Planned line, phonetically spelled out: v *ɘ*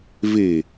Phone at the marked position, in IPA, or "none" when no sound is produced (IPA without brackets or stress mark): e